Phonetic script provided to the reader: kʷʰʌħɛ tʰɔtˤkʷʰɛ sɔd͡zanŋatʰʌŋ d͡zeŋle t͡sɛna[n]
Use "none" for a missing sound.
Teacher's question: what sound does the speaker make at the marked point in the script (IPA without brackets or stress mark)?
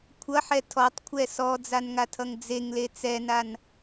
n